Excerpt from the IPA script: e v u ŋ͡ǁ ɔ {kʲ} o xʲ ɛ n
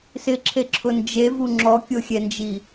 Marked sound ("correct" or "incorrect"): correct